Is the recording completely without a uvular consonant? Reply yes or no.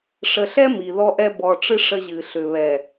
yes